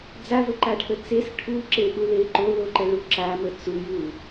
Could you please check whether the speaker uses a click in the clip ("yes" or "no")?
yes